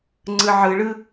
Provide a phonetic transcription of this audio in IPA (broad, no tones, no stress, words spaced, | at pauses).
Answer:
ŋ͡ǀɯʕɯɭɯ